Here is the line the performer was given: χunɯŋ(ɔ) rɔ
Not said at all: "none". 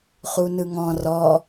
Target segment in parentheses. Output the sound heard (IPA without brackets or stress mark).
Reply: ɔ̃